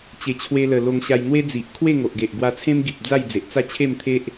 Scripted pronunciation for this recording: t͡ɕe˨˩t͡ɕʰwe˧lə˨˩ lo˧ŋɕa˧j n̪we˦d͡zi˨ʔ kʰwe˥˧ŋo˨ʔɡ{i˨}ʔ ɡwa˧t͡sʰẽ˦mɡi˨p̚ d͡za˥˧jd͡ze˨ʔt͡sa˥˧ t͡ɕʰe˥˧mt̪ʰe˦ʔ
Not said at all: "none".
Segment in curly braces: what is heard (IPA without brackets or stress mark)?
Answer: e˨